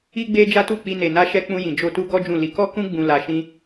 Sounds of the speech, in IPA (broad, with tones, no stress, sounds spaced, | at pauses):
i˧ ɡ͡b e˧ d͡ʒ a˦ t u˦˨ k͡p i˧ n e˨ n a˧ ʃ ɛ˧ k͡p ũ˧ j ĩ˨ d͡ʒ o˧ t u˦ ɡ ɔ˦ d͡ʒ ũ˦˨ l i˨˦ k ɔ˦ k ũ˦ ɡ͡b ũ˧ l a˧ ʃ ĩ˦